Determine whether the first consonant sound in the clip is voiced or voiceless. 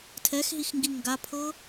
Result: voiceless